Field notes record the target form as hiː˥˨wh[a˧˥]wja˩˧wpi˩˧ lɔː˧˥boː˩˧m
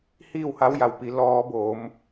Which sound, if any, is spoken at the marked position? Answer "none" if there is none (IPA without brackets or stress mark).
a˧˥